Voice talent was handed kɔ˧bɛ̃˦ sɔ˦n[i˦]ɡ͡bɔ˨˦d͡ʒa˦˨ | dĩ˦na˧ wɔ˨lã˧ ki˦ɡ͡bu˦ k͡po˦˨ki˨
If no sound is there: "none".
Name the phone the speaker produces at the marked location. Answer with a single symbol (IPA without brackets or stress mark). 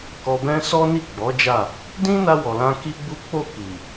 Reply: i˦˨